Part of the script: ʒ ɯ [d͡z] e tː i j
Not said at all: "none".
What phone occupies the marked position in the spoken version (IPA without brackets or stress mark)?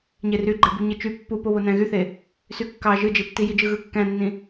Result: d͡ʒ